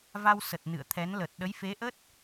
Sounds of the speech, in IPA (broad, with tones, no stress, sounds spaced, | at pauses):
v a˧ w s ə˨˩ t̚ n ɨ̰˧˨ ə̯ t̪ʰ ɛ˨˦ n l ə˨˩ t̚ ɗ ə˨˦ j f e˨˦ ʔ ə˦˥ t̚